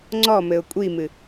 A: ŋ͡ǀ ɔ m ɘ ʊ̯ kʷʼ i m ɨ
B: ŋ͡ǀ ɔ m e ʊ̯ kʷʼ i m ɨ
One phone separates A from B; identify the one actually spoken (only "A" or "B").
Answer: A